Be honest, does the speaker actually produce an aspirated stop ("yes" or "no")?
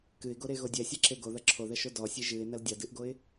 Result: yes